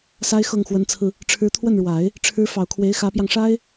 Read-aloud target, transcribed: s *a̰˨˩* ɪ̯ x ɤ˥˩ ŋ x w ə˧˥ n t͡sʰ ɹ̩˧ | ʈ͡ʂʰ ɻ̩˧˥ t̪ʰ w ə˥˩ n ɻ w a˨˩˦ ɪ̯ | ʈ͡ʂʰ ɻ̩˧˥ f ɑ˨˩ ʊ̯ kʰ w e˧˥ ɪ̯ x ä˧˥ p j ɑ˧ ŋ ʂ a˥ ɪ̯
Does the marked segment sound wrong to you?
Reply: yes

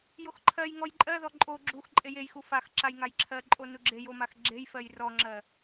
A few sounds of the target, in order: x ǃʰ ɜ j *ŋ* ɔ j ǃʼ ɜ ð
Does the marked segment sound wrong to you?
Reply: no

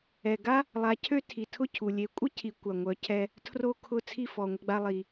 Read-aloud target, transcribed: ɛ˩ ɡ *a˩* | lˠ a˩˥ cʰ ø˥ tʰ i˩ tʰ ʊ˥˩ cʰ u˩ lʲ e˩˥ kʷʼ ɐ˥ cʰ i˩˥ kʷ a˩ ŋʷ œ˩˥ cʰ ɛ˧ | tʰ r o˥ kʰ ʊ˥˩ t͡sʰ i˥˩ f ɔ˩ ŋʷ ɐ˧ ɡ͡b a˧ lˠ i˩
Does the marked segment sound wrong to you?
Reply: yes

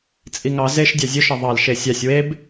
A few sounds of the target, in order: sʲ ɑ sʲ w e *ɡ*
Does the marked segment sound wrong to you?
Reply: yes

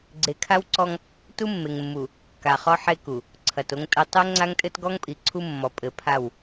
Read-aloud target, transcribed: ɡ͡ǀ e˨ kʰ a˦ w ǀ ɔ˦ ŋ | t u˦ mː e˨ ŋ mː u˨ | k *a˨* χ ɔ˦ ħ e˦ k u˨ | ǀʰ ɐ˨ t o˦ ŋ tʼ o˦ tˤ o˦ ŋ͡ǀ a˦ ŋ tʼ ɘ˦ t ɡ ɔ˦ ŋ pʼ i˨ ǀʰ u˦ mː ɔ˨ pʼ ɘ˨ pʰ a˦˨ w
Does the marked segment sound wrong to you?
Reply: no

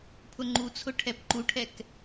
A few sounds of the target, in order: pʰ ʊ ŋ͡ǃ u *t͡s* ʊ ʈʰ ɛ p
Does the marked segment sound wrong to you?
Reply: yes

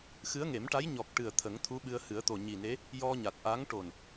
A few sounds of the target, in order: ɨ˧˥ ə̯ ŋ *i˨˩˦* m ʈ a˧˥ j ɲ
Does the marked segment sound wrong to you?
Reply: yes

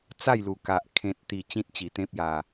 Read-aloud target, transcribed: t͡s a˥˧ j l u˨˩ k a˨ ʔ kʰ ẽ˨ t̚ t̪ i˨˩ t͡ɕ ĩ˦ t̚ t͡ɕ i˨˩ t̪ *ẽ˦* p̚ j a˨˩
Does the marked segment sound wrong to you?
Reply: no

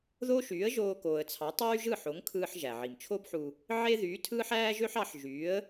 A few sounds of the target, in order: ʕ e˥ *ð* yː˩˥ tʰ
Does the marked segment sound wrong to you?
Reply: no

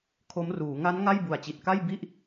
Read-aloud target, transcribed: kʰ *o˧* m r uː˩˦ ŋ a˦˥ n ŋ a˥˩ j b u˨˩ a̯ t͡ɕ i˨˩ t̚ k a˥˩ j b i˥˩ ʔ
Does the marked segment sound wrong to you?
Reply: yes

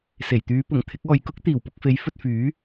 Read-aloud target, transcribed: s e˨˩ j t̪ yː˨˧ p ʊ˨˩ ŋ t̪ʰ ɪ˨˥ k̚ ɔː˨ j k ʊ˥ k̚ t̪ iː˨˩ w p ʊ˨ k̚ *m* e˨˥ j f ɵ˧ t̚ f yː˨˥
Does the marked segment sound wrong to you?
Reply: yes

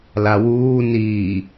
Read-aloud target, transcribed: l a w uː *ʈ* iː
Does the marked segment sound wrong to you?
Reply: yes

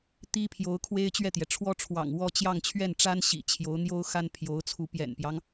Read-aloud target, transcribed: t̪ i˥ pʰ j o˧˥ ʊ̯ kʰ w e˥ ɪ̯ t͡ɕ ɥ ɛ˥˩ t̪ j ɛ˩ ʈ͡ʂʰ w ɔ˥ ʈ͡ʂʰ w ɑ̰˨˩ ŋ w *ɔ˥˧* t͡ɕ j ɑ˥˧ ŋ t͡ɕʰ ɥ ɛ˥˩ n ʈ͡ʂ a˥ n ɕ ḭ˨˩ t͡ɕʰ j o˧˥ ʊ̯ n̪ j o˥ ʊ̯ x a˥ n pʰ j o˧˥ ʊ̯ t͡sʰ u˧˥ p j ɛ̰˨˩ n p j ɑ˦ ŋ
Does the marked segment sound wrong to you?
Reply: no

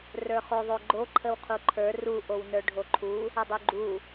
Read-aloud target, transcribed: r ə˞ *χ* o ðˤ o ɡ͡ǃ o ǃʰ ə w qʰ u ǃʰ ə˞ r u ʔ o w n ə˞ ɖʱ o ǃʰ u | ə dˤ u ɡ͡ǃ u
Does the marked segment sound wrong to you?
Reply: no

